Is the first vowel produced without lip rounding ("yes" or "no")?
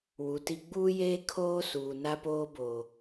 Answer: no